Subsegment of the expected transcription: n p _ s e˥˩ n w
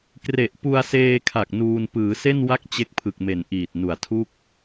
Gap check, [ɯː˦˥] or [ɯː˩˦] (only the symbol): ɯː˩˦